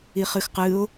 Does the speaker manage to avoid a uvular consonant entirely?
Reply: no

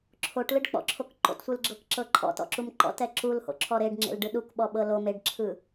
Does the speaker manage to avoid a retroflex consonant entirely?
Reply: no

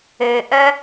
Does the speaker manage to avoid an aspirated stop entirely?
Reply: yes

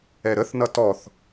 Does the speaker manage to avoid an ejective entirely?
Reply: yes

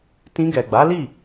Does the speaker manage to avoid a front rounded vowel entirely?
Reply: yes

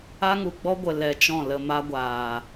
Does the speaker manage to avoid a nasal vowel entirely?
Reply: no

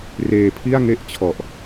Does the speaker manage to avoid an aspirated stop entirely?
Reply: no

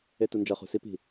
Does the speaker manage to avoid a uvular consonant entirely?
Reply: no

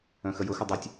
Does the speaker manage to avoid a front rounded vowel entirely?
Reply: no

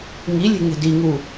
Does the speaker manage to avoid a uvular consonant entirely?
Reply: yes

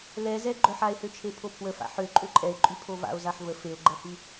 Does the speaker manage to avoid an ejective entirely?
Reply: no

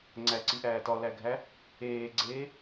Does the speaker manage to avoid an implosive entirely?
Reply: yes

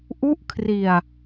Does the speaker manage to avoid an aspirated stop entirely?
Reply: no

